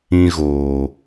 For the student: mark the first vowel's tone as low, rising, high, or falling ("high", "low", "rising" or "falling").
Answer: high